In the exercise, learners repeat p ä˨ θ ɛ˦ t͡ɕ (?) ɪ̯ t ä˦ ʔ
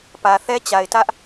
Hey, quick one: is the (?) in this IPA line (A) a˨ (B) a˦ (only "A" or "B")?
A